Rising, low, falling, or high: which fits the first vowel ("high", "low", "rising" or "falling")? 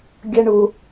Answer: high